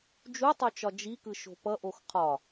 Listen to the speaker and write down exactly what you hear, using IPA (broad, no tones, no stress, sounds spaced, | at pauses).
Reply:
d͡ʒ u tˤ o t͡ʃ ɒ d͡ʒ i k ɯ ʃ o̤ p ʌ ʔ o x qʰ ɒ